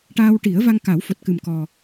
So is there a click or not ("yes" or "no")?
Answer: no